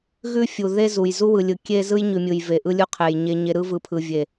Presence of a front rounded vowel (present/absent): absent